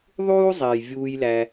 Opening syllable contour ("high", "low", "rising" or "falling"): high